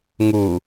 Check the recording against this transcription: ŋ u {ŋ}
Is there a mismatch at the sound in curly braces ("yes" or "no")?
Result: yes